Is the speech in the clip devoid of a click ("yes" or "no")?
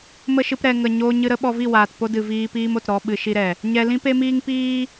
yes